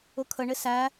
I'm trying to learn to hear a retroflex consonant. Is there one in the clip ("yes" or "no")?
yes